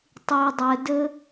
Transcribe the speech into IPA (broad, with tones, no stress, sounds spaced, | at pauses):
tˤ y˧ dˤ ɘ˧ d ɘ˦